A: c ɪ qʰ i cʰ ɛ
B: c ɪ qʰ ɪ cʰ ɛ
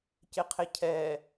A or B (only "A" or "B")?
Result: B